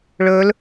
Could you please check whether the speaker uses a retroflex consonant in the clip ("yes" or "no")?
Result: yes